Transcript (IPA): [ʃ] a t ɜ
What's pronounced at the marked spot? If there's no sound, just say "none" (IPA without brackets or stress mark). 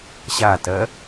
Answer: ɕ